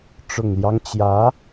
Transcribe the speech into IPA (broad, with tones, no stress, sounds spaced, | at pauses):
ʈ͡ʂ ʊ˨˩ ŋ l j ɑ˦ ŋ t͡ɕ j ä˧˥